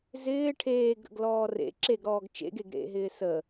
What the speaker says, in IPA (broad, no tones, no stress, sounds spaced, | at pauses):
z ɪː ʈʰ eː ɡ ɾ ə̰ ɡ l ɔː r ḛ ǁ e ɡ ɾ ɔː ɡ t͡ʃ ḛ ɡ e ɡ ɾ ḛ ɦ ɪː s ə